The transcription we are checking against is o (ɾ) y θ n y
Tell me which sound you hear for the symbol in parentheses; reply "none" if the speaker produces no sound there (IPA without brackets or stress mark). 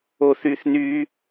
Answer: θ